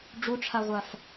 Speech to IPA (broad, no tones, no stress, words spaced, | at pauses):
ɖ͡ʐuʈ͡ʂʰaʁʷaf